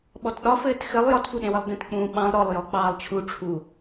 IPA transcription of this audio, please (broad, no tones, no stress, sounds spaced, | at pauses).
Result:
ɓ ɔ t ɗ ɒ f ɘː t x ɘ lˠ j ɒ t f u ɗ ẽ w ə lˠ d ẽ t k͡p ũː ɓ ɑ̃ lˠ ɾ ɔ lˠ j ɔ k͡p ɑː lˠ t͡ɕʰ u ʈ͡ʂʰ u